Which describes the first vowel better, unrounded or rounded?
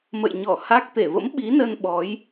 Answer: unrounded